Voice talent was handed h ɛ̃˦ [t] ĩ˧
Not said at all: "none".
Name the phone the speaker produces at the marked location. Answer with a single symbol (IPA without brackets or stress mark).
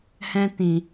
t